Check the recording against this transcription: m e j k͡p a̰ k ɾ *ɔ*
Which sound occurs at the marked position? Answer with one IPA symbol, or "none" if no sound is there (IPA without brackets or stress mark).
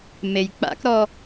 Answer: ɔ